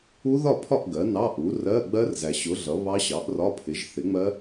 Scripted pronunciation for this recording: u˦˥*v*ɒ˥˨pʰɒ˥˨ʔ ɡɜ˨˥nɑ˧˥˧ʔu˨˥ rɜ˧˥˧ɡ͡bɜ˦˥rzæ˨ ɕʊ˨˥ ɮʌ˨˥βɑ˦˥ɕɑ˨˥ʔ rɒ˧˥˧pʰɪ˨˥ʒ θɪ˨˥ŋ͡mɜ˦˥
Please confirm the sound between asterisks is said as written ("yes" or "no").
no